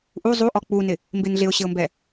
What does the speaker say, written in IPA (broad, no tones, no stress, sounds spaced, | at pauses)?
ʔ u zˤ u ʔ ɔ k͡p u n ɪ | m b ɪ n ɮ ɪ ʊ̯ ɕ ɪ ʊ̯ m b ɛ